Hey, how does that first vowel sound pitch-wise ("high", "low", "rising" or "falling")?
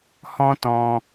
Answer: high